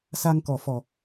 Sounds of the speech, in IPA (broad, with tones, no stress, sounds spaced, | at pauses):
s a˧ ŋ k ɔ˨˩ f ɔ˨˩